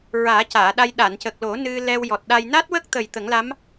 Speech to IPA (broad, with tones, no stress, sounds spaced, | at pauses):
ɹ aː˨˩˦ c aː˨˩˨ ɗ a˧ j ɗ a˨˩˨ n c ə˨˩ k̚ l o˨˩˦ n ɨ˧ l ɛ˧ w j ɔ˨˩ t̚ ɗ a˧ j n a˦˥ t̚ w ə˦˥ k̚ t̪ ə˨˩ j t̪ ə˨˩˦ ŋ l a˧˥ m